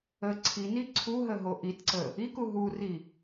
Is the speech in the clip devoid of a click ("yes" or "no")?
no